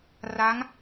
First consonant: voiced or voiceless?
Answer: voiced